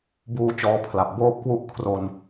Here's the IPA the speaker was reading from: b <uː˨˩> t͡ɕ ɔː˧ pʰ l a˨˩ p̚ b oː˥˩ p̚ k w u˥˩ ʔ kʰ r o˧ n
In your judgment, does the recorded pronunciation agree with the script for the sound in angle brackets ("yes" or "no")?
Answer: no